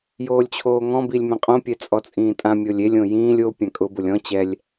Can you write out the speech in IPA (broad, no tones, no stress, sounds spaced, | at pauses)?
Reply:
j oː lʲ t͡ɕʰ oː ŋ ɔ̃ b i lʲ m ɛ̃ qʼ õ pʲ ɛ t͡sʼ ɔ t͡sʼ ĩː tʼ ã mʲ o lʲ e lʲ õ j ĩː lʲ o pʲ ã kʼ ʊ b ʊ lʲ ɔ̃ t͡ɕ ɛ lʲ